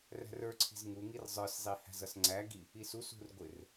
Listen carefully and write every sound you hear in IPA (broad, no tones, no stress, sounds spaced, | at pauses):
r æ̤ r ə˞ ǀʰ i̤ z ŋ u ŋ i r zˤ ə˞ s zˤ i h æ̤ z ʌ s ŋ͡ǀ æ ɡ i | i s u s ṳ r ɡʷ ɪ r